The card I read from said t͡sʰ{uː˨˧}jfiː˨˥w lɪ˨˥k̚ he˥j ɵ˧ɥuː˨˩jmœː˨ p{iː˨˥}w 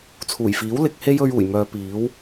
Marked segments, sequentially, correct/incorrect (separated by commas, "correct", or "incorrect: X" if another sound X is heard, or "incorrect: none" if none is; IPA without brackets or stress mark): incorrect: uː˨˩, correct